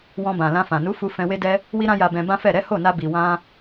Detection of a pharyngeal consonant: absent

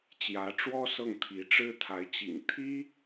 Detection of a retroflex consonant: present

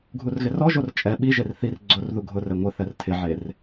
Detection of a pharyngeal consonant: present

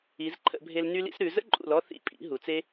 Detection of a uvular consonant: absent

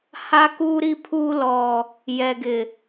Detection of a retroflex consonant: absent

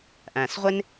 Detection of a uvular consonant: present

